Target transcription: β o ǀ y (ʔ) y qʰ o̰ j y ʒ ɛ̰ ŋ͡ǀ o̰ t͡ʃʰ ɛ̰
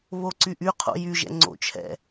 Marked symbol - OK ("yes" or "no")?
yes